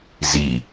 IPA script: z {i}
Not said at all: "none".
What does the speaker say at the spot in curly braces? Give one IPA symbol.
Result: i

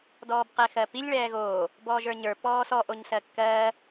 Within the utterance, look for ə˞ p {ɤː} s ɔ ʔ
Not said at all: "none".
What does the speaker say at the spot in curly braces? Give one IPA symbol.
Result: ɔː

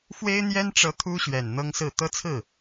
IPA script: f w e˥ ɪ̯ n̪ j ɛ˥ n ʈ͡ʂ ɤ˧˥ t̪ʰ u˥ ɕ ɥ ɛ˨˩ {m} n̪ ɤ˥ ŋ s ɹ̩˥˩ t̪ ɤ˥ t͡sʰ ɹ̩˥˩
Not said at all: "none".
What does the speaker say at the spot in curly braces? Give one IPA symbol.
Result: n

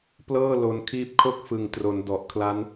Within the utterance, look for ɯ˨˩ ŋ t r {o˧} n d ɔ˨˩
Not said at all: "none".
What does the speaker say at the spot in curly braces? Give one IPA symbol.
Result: o˩˦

